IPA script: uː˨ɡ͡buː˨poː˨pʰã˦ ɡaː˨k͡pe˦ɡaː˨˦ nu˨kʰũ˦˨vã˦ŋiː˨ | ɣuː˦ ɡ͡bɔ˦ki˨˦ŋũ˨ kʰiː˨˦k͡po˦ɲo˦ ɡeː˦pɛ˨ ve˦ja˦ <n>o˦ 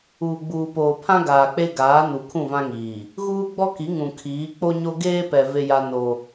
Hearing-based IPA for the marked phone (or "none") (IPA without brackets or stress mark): n